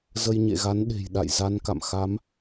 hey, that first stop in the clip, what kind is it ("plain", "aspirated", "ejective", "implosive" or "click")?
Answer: implosive